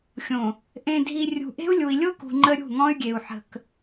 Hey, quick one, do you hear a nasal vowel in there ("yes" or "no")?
yes